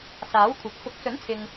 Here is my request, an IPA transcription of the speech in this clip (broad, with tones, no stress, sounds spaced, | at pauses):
s aː˨˥ w kʷʰ ɐ˨˥ p̚ f ʊ˨˥ k̚ s ɵ˨˥ n t͡sʰ ɪ˨ ŋ